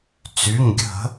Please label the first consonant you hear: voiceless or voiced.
voiceless